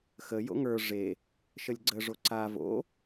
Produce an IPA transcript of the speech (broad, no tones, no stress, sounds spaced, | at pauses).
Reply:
x ə j o̰ ŋ ə˞ ʐ e | ʃ ə lʲ ɡ͡ǀ ə ʐ o ǀ a v o̰